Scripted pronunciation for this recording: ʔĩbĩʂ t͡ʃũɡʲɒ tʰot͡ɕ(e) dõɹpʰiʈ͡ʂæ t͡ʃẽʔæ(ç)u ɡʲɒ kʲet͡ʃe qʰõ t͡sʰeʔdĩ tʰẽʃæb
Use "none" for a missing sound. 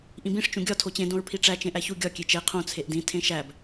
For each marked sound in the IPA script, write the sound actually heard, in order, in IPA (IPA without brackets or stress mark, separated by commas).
ẽ, ç